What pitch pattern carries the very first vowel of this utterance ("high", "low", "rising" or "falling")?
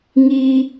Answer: high